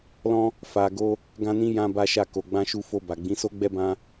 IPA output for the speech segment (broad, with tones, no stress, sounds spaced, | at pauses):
l ɔ̃˦ | f a˧ ɡ o˦ | ɡ ã˦ n ĩ˦ j ã˦ b a˦ ʃ a˦˨ k o˨ ɡ͡b ã˧ ʃ u˧ f o˧ b a˨ ɡ͡b ĩ˨˦ s o˦ ɡ͡b ɛ˦ b ã˦